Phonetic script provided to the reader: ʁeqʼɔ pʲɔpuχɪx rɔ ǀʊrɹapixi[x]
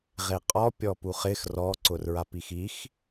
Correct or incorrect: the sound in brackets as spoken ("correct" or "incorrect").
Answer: correct